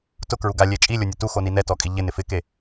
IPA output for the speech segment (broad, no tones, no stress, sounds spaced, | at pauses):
t ʊ k ɹ u ɡ a lʲ e t͡ʃʼ i lʲ o nʲ ʊ t u x o n i n ɛ t ɔ kʼ i ʎ ɪ n ɪ f ɪ k e